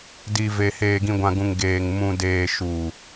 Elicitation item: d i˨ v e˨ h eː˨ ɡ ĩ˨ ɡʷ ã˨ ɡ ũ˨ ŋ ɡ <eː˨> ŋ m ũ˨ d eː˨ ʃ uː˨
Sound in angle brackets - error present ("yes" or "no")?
no